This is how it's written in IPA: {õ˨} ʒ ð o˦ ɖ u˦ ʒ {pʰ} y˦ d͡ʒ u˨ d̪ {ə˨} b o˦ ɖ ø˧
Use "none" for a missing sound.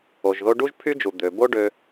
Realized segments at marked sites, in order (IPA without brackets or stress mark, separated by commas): o˨, pʰ, ø˨